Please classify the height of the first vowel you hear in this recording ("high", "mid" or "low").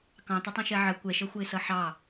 low